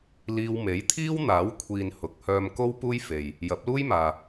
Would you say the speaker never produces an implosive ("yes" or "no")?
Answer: yes